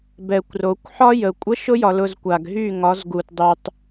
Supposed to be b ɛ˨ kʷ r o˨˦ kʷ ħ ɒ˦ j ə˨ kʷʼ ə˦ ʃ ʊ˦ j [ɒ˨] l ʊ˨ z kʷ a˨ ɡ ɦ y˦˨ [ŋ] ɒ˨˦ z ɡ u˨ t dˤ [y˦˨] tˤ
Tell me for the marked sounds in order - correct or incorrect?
correct, correct, incorrect: y˨

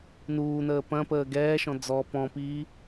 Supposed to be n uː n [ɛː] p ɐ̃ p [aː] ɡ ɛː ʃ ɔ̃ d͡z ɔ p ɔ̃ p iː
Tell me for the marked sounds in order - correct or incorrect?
incorrect: əː, incorrect: əː

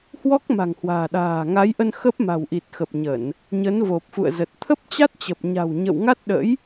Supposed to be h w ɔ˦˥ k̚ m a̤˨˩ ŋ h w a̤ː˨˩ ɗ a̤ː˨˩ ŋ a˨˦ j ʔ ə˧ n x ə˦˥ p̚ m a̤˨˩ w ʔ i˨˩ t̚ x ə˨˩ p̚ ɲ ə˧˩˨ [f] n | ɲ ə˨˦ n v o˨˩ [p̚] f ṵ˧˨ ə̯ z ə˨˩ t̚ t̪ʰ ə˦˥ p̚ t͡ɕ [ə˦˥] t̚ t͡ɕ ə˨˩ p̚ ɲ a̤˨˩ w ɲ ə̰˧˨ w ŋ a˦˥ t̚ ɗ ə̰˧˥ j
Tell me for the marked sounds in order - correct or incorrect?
incorrect: none, correct, incorrect: a˦˥

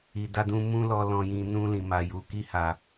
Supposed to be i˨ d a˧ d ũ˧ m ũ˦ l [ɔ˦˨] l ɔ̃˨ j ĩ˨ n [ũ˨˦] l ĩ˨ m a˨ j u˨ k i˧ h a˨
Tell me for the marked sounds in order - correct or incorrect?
incorrect: ɔ˧, incorrect: ũ˧

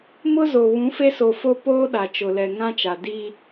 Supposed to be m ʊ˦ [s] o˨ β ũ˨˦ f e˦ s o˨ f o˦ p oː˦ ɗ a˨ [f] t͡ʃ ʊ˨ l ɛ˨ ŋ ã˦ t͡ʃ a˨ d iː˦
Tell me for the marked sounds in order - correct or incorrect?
incorrect: z, incorrect: none

